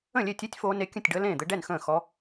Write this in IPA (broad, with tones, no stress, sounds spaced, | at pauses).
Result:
ə̃˥˨ lʲ e˥˨ tʲ e˦˥ tʲ f oː˦˥ n e˦˥ kʲ ə̃˥˨ tʲ ɖ əː˦˥ l ẽː˥˨ d̪ ɘ˦˥ ɖ ɛ˥˨ n x ə̃ː˥˨ x ɔ˦˥